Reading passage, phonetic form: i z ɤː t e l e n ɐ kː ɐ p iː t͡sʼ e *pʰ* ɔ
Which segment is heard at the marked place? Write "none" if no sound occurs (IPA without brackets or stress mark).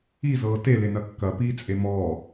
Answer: m